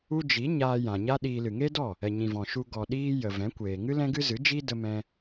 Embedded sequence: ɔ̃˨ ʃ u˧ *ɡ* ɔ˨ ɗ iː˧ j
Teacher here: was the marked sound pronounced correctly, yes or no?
yes